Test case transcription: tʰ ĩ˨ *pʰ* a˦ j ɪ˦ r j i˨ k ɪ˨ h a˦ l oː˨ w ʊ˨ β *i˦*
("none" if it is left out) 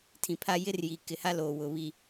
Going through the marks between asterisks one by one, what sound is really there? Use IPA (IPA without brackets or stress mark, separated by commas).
pʰ, i˨